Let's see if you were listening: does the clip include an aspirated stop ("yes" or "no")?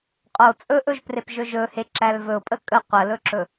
no